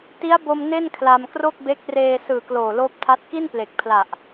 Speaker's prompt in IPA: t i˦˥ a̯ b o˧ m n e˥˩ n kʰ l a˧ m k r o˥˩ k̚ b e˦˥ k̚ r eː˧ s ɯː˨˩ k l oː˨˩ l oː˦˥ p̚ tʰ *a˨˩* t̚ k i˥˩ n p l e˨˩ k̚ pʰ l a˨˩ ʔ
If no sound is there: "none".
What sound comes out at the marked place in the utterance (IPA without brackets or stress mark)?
a˦˥